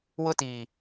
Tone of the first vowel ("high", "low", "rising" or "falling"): high